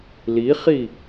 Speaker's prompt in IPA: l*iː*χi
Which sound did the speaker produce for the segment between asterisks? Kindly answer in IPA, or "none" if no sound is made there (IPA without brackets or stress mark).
i